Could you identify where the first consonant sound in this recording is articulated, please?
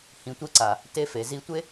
glottal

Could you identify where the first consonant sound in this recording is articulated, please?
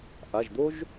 glottal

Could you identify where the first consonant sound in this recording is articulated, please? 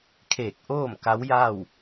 velar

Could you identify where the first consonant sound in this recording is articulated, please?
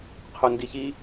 uvular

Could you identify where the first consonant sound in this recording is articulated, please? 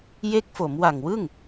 palatal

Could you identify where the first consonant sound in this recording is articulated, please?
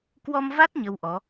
velar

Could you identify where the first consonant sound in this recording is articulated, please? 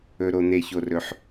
alveolar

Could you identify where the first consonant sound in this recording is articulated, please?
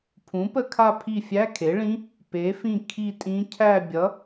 labial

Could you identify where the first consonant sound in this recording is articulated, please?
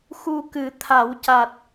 velar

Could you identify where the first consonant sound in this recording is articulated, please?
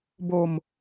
labial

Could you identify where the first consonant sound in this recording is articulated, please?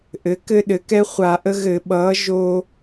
glottal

